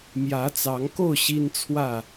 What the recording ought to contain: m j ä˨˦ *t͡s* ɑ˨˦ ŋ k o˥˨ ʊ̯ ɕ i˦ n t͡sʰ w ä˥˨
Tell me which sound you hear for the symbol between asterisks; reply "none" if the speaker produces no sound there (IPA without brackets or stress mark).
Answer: t͡s